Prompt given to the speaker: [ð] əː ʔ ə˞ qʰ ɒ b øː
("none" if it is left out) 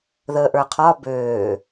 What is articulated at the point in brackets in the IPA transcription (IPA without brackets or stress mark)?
ð